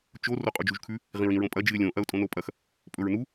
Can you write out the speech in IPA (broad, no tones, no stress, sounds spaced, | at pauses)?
t͡ʃ o r o qʼ u d͡ʒ u ʒ kʰ ʉ | ʁ ĩ ɹ ĩ ɹ õ pʼ ɐ d͡ʒ ɨ ɪ̯ lʲ õ ʔ ɐ ʊ̯ tʼ õ n o pʼ ɐ x | pʼ ɵ ɹ n u